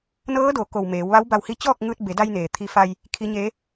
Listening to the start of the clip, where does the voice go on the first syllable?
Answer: rising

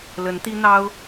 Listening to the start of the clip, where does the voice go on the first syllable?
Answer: rising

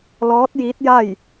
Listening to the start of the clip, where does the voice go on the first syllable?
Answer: rising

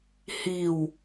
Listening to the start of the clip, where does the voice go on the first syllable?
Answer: low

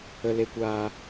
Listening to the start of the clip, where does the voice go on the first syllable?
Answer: low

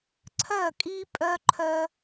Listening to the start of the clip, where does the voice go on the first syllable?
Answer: falling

